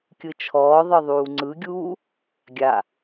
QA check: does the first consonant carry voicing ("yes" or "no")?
no